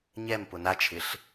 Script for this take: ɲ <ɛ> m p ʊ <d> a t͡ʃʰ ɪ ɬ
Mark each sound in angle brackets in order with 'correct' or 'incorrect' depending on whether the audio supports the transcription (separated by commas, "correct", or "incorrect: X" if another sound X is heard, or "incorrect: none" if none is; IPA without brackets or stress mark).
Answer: correct, incorrect: n